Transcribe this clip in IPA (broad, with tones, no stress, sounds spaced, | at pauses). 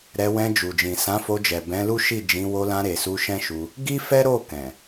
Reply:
ɾ ɛ˧ w ɛ̃˧ d͡ʒ u˨ d͡ʒ ĩ˨ s ã˨˦ f o˧ d͡ʒ ɛ˨ b ɛ̃˨˦ l u˦ ʃ i˦˨ d͡ʒ ĩ˨˦ w o˧ l ã˧ ɾ e˨ s u˧ ʃ ɛ̃˦ ʃ u˧ | ɡ i˦ f ɛ˦ ɾ o˦˨ k ɛ̃˨